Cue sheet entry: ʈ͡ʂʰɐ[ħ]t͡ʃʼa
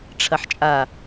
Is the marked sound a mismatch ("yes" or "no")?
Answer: no